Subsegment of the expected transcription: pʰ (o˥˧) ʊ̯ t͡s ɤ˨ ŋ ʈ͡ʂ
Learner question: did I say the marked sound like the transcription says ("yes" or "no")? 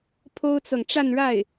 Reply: no